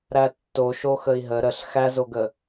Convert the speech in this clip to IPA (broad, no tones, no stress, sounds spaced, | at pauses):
ɾ æ tː o ʃ o x ə i̯ ɦ ə ɾ ə ɬ x æ z o ɡ ə